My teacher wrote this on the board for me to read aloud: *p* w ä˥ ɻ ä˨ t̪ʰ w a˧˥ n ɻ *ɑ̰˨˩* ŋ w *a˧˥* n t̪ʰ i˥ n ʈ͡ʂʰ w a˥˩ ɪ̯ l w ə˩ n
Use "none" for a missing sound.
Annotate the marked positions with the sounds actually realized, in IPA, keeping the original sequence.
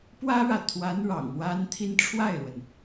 p, ɑ̰˨˩, a˥

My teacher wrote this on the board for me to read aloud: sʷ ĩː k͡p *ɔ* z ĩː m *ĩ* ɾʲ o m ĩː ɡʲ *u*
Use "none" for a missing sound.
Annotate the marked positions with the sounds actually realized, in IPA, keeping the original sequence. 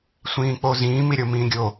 o, i, o

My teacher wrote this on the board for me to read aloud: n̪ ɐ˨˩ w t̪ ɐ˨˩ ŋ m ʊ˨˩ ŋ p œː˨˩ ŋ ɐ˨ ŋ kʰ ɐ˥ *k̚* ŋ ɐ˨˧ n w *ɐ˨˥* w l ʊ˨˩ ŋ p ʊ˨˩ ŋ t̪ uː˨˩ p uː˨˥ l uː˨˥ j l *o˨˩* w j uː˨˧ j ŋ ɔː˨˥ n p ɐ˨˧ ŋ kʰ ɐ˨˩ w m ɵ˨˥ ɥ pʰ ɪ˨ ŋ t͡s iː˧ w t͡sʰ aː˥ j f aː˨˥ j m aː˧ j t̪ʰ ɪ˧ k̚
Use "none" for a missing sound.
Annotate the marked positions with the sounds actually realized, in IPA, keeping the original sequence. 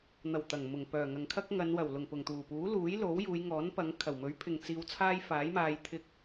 k̚, ɐ˨˩, o˨˥

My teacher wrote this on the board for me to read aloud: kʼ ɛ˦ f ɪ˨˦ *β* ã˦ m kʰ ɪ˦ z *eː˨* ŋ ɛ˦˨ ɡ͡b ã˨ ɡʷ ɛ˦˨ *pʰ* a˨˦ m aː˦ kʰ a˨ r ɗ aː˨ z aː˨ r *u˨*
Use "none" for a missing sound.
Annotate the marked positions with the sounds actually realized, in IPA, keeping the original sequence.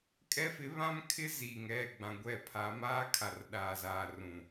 β, iː˨, pʰ, ũ˨

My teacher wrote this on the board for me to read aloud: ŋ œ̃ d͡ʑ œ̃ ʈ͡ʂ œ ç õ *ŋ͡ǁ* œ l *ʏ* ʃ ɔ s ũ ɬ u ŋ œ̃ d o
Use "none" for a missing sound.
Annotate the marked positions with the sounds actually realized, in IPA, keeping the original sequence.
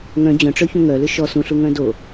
ŋ, ʏ

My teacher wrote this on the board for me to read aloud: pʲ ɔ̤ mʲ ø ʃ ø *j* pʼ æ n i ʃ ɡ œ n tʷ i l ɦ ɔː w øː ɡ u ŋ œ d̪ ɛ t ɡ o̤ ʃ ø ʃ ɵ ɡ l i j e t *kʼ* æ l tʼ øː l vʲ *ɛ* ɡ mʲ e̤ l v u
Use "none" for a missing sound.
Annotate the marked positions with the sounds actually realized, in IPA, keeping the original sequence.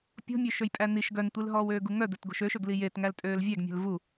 j, ŋ, æ

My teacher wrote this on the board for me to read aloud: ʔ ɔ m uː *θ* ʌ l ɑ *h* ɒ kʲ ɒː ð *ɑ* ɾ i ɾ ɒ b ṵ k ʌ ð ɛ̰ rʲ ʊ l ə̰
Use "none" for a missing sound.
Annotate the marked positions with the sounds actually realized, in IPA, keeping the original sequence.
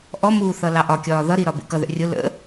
θ, ʔ, ʌ

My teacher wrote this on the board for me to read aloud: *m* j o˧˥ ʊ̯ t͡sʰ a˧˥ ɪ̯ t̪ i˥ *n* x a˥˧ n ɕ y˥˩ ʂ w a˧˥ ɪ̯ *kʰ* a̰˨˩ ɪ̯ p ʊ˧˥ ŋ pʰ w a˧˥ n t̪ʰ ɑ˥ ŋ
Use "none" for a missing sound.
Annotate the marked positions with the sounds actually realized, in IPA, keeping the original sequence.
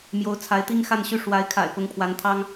m, ŋ, kʰ

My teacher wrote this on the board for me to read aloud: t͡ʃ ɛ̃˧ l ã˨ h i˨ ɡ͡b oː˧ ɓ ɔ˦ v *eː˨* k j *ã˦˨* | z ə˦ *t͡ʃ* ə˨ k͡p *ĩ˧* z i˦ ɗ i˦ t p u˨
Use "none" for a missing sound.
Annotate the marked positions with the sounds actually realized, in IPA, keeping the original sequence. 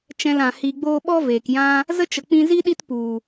eː˨, ã˦, t͡ʃ, ĩ˧

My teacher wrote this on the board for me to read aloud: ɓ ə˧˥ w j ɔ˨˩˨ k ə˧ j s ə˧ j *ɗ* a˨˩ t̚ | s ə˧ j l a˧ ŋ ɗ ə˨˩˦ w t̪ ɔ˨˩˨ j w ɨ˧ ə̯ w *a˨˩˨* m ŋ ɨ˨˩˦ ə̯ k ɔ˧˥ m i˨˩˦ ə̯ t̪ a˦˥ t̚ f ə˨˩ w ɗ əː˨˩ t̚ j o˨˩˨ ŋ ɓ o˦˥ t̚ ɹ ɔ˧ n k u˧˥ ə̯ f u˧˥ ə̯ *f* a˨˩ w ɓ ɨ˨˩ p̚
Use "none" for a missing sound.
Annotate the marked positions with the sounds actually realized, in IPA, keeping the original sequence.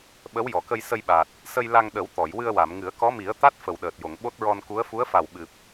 ɓ, a˨˩˨, f

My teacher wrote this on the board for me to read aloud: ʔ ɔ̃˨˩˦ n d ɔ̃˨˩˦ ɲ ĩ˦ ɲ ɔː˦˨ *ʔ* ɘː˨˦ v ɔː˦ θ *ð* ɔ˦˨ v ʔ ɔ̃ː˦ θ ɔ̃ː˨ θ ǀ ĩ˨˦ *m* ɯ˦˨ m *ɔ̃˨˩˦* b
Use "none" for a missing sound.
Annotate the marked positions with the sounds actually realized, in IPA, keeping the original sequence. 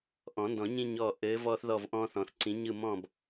ʔ, ð, ɲ, ɔ̃˦˨

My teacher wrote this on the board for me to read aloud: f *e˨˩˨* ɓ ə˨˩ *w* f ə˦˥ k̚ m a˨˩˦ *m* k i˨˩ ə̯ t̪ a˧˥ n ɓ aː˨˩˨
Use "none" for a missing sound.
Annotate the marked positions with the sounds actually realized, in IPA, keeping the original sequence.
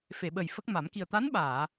e˨˩˨, j, m

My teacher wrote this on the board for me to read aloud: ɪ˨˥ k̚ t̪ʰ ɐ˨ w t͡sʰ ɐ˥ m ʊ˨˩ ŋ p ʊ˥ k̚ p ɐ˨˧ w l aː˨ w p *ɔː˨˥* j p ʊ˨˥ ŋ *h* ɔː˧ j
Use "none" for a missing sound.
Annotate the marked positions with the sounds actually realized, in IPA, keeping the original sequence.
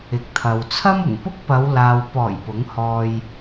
ɔː˨˩, h

